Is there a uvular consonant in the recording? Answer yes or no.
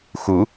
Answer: no